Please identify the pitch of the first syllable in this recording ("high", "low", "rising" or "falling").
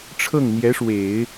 falling